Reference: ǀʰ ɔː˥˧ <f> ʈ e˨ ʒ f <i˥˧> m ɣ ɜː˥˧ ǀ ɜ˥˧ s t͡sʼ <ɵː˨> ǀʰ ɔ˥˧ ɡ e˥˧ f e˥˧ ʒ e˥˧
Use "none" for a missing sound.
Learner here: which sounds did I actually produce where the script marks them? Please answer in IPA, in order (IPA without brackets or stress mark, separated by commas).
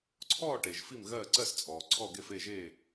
none, i˥˧, ɔː˨